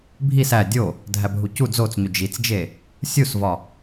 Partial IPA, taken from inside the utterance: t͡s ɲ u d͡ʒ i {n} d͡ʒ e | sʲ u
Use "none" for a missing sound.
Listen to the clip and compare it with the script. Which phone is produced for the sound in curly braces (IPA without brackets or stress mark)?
t͡s